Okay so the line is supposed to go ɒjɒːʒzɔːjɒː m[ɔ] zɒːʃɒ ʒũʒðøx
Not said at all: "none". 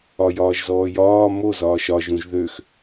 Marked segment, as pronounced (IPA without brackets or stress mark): o